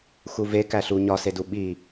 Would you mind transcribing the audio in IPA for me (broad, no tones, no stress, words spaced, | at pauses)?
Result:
xuve kæɬu ɲɒsedu ɓi